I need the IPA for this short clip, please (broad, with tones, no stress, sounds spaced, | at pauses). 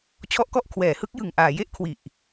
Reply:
t͡ɕʰ ɔ˦˥ ʔ k ɔ˦˥ ʔ kʰ w ɛː˩˦ h ɯ˦˥ k̚ j ɯ˨˩ ŋ ʔ aː˩˦ j e˥˩ ʔ kʰ w i˨˩ ʔ